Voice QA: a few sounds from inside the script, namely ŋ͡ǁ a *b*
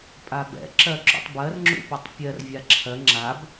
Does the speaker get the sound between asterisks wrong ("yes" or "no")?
no